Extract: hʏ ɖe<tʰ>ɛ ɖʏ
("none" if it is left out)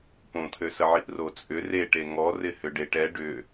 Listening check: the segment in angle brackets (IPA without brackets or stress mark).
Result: ʈ